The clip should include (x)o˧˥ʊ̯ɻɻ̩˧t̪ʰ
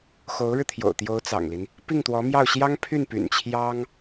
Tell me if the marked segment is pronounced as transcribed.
yes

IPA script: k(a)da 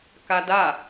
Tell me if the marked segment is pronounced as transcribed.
yes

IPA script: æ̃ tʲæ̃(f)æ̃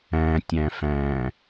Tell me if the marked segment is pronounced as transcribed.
yes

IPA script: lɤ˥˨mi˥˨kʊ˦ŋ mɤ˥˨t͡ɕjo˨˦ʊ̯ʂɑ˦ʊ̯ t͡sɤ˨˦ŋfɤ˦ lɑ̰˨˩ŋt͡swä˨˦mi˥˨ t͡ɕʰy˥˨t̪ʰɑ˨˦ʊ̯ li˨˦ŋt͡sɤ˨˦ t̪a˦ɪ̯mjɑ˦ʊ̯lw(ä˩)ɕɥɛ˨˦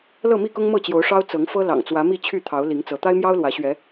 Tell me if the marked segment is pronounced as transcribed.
no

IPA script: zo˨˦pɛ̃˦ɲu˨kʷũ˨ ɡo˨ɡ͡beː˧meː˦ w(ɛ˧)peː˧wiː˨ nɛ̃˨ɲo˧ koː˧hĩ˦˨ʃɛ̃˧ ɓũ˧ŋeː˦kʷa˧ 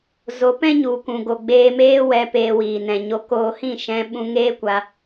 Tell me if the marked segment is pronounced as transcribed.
yes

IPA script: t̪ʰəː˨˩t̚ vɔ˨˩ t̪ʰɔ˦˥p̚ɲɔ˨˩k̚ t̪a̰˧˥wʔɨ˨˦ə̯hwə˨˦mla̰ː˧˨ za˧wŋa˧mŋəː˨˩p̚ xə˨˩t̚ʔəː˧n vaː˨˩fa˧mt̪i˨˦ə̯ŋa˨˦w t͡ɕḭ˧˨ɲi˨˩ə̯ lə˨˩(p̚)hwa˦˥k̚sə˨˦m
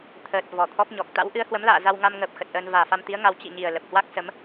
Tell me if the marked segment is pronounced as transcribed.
yes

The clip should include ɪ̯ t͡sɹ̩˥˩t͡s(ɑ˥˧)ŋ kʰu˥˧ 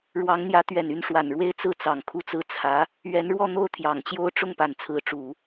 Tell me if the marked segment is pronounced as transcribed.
no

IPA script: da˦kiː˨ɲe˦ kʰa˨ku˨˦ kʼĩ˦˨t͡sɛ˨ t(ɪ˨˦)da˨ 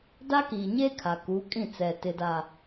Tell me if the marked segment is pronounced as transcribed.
no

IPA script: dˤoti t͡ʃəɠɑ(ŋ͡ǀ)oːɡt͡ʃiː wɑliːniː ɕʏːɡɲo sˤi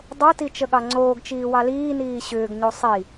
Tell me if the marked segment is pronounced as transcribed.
yes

